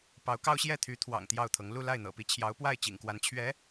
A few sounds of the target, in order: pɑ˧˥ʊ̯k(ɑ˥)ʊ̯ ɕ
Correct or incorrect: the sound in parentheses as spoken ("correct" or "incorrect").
correct